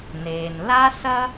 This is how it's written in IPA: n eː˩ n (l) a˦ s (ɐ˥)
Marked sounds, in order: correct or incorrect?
correct, correct

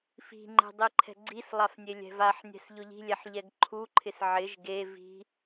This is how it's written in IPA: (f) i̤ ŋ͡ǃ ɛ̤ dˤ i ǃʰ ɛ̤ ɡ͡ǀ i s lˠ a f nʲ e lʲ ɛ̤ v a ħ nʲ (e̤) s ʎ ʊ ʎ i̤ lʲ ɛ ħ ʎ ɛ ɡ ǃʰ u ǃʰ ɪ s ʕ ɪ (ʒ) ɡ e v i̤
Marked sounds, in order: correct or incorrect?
correct, incorrect, correct

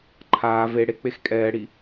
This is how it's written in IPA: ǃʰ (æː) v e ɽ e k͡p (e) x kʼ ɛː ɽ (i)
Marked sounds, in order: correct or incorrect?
incorrect, correct, correct

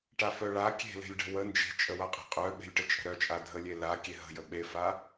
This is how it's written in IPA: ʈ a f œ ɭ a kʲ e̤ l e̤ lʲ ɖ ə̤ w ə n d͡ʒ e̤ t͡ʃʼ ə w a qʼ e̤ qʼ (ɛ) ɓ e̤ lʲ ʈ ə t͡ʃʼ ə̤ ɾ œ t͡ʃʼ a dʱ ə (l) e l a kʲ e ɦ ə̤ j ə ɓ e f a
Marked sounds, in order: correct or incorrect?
incorrect, incorrect

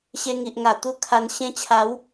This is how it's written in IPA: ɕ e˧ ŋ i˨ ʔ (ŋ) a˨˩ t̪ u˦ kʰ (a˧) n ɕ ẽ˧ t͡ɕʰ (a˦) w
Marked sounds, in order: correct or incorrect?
correct, correct, incorrect

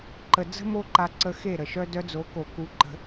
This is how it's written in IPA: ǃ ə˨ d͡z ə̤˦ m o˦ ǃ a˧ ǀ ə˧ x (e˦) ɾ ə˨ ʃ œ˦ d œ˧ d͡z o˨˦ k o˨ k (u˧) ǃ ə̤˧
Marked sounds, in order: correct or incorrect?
incorrect, correct

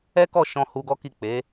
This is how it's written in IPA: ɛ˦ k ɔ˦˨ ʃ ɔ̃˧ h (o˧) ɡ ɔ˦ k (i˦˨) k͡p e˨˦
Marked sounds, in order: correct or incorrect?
incorrect, correct

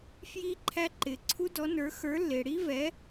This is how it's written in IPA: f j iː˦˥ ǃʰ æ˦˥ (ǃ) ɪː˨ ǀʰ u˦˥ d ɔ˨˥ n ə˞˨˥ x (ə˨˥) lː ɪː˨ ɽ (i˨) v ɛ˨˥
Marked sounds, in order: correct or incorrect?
correct, incorrect, incorrect

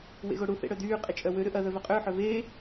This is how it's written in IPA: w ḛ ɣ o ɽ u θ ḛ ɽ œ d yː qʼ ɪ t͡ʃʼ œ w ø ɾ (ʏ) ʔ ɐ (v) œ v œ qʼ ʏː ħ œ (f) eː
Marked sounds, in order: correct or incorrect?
correct, incorrect, incorrect

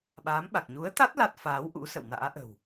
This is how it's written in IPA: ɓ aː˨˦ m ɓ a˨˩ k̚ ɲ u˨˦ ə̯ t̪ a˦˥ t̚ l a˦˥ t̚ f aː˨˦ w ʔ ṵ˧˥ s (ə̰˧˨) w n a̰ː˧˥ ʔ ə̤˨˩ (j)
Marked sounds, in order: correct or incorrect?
correct, incorrect

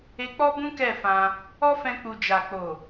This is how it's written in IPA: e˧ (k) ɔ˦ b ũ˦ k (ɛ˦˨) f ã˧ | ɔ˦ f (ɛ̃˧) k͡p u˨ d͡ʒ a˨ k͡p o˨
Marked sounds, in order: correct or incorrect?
incorrect, correct, correct

